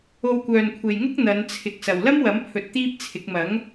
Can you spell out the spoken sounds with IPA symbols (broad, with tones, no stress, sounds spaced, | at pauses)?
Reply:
o˧ w kʷ œː˨ n kʷʰ e˨ j ŋ ʊ˥ k̚ n̪ ɐ˨˧ n t͡sʰ ɪ˨ k̚ s ɐ˨ w l ɐ˥ m w ɐ˨˥ m pʰ ɵ˨ t̚ t̪ iː˥ p̚ t͡sʰ ɪ˨˥ k̚ m ɐ˨˥ ŋ